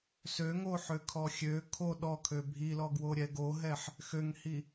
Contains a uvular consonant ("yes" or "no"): no